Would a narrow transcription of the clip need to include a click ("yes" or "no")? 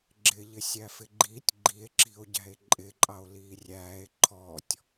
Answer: yes